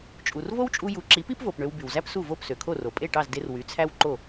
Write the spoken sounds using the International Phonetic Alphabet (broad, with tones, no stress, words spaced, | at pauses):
t͡ʃʼu˩rvo˥wt͡ʃʼu˧ ju˩˥ǁi˩˥pi˥pvo˩p ɳø˧wby˩wzæ˥psu˥˩ vo˥˩psø˩kʰo˥˩ro˩ pʼe˥˩ʈɑ˥˩zde˧r wy˩˥t͡sʰæ˥wǃo˥˩